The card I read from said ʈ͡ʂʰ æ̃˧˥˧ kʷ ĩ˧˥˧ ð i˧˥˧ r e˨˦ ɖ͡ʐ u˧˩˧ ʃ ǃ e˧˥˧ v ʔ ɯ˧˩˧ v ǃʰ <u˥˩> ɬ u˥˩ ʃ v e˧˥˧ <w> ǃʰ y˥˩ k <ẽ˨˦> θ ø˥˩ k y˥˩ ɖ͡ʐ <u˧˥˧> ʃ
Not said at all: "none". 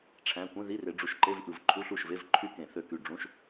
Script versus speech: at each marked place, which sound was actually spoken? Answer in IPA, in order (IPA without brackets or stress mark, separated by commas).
u˧˥˧, v, ẽ˧˩˧, ũ˧˥˧